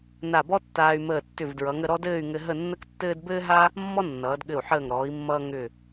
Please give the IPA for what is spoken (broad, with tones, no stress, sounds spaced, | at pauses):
n a˧˩ b ɔ˥ tː aː˧ y̯ m əː˧˩ tː ʏ˧˩ v d ɹ ʌ˩˧ ŋ ə˥˧ ɾ ɔ˥ d ɘː˥˧ y̯ ŋ ɘ˧ ɦ ə˥˧ nː ə˥ k tː ɘː˥ d b ɘː˥ ɦ a˥ | mː ɔ˥ nː ʌː˩˧ d ɠ ɘ˧˩ u̯ ħ əː˧˩ ŋ ɾ ɔː˩˧ i̯ mː ʌː˧ ŋ ʏ˧˩